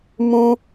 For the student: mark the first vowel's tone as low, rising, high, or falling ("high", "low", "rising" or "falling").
high